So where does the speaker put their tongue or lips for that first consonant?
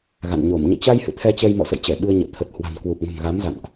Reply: velum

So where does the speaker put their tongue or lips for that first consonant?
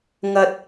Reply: velum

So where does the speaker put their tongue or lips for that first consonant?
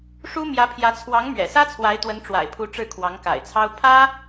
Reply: retroflex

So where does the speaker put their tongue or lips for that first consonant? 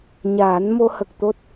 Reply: palate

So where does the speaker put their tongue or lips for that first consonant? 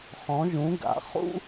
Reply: uvula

